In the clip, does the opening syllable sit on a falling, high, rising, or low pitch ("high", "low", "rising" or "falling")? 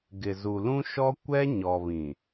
low